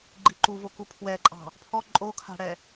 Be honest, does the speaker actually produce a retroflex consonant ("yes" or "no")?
yes